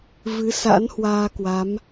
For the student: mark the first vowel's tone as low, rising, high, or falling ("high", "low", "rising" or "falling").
rising